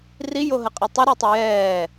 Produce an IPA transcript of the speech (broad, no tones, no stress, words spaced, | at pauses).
rijoɦəqʼɛ tˤəɾitˤə jɛː